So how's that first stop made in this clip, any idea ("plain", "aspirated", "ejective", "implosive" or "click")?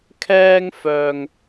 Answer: aspirated